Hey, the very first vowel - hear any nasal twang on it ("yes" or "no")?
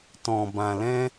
yes